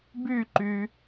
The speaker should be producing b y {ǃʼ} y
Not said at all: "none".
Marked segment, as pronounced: ǃ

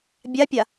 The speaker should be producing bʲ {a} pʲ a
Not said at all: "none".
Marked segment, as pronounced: a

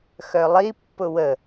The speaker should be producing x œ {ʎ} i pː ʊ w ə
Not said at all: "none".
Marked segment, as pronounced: lˠ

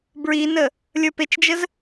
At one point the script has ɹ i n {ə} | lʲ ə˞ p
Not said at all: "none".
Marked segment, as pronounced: ə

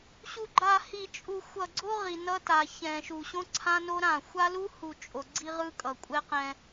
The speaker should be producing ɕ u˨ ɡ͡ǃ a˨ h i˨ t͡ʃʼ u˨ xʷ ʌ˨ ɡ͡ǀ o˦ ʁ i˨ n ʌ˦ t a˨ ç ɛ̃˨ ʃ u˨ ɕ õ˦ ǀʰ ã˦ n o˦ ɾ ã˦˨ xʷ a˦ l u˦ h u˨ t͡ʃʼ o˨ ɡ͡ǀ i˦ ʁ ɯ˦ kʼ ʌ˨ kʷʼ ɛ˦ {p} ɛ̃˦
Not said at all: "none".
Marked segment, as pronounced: q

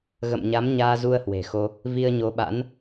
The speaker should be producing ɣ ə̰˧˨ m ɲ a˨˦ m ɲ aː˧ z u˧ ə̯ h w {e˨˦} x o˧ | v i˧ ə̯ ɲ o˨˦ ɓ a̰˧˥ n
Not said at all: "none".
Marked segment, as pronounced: e̤˨˩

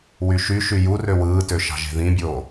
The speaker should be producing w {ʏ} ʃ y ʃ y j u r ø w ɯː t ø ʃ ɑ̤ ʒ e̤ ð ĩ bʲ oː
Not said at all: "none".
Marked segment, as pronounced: y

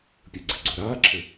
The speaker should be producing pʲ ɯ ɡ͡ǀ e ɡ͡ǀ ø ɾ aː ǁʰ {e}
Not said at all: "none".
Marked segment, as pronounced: ɘ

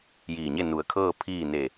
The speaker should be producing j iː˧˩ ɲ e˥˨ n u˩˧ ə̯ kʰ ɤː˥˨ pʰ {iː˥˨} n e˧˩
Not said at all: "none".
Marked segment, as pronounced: iː˥˨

